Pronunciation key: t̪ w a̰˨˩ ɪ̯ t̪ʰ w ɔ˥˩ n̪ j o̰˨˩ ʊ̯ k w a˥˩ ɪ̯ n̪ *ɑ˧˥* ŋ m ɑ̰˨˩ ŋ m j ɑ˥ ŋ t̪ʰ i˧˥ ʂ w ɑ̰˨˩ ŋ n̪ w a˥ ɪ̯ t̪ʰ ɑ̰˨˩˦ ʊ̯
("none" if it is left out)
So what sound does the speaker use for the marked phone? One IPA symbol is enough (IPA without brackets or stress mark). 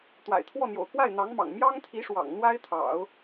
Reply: ɑ˧˥